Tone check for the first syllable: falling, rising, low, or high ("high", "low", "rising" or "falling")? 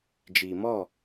low